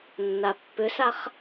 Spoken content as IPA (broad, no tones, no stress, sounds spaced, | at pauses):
nː a pː ʏ s a χ